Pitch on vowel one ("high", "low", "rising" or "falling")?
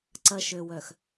low